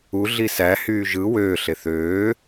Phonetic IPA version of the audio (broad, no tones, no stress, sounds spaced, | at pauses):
u ɮ i s æ h yː ʒ ɯ w øː ɬ e θ øː